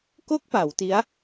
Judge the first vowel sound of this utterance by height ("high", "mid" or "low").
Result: mid